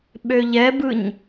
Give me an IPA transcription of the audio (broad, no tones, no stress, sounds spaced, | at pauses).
ɓ ø ʎ ɛ b ɯ ɲ